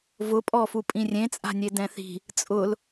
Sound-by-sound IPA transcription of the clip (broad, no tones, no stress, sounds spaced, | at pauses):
v ʊ pʼ ɔ f u pʼ ĩ rʲ ẽ t͡sʼ a̤ nʲ e d ɛ̃ θ i̤ | t͡sʼ ʊ l